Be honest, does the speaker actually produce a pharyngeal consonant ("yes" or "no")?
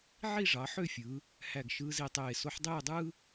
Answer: yes